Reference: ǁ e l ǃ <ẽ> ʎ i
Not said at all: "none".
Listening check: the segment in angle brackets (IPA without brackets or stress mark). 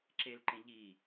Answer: ẽ